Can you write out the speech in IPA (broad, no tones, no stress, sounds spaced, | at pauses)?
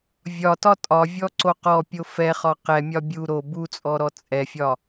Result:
vʲ ɒ t ɒ tʼ ɒ vʲ ɔ ǀ o q ɔ pʲ o f ɛ χ ɒ q ɛ mʲ ɒ bʲ u ɾ o b u t͡sʼ ɔ ɾ ɔ t͡sʼ ɛ fʲ ɒ